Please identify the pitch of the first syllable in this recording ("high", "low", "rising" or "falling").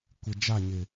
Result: low